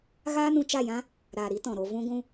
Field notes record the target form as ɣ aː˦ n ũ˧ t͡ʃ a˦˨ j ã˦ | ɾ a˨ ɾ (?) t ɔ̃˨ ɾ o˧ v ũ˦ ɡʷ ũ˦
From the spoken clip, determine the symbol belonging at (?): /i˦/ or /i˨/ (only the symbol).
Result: i˦